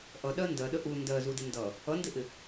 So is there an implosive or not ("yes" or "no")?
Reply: yes